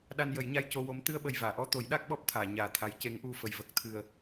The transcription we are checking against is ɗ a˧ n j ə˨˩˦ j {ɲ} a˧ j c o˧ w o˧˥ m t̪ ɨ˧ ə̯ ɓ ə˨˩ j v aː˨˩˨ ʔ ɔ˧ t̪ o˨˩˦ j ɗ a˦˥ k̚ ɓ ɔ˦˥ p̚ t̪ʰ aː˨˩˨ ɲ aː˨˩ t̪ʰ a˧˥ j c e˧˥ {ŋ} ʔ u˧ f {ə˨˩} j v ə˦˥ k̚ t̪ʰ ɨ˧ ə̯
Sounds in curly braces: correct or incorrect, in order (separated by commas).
correct, correct, correct